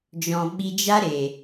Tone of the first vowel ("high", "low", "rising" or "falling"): low